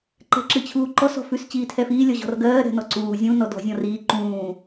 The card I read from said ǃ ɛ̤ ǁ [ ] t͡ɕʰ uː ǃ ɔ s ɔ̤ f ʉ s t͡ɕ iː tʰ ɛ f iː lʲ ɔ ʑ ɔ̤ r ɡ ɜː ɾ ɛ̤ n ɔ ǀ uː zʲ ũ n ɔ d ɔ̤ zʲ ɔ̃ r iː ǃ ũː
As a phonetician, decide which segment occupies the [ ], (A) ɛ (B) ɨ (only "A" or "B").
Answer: B